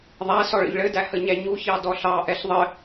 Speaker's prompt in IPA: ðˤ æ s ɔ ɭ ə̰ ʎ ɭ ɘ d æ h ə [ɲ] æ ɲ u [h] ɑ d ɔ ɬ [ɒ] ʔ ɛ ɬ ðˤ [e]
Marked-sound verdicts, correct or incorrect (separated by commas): correct, incorrect, incorrect, incorrect